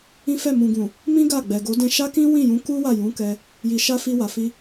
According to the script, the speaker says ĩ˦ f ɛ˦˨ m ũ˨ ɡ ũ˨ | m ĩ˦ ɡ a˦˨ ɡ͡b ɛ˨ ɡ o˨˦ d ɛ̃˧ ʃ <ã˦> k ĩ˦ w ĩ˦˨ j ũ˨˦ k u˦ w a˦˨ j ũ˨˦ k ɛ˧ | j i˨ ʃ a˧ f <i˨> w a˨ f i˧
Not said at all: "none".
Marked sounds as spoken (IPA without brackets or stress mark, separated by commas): a˦, i˧